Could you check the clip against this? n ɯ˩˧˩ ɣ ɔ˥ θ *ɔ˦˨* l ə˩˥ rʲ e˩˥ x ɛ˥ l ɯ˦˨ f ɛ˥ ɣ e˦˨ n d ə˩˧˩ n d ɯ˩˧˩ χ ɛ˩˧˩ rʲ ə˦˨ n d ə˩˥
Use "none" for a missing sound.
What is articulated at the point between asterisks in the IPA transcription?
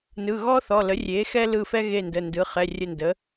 ɔ˩˧˩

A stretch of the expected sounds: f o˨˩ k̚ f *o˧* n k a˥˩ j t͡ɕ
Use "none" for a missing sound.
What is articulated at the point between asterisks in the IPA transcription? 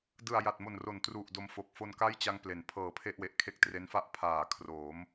o˧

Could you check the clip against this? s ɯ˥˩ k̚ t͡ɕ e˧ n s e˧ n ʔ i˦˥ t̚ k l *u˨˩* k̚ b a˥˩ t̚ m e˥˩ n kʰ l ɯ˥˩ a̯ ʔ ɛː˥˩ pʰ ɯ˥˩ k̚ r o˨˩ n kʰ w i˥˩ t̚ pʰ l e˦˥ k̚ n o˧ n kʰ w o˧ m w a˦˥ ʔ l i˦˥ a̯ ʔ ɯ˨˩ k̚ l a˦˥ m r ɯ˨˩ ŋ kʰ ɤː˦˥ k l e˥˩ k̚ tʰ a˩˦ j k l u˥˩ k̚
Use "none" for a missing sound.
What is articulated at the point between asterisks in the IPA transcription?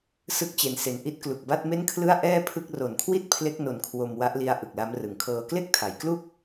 u˨˩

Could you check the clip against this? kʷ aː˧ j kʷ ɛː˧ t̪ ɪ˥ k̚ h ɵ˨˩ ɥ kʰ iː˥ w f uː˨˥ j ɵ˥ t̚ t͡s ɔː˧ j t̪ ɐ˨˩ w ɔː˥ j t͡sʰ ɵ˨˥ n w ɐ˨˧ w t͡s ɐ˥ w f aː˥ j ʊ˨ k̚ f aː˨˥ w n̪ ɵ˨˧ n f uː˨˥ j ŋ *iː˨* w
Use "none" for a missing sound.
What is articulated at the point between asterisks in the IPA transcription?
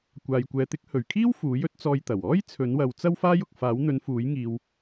iː˧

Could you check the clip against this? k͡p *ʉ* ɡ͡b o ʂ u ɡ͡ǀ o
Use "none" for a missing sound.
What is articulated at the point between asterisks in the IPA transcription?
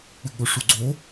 ʉ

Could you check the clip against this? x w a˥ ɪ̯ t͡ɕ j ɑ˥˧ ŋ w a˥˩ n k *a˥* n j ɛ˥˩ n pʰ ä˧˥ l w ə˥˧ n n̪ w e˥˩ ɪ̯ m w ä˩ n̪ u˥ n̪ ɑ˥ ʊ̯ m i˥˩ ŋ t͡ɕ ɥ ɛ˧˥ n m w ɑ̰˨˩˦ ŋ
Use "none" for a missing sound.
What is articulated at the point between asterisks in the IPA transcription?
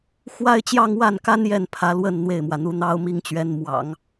a˥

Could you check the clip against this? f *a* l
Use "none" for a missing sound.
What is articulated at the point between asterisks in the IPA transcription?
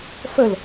ə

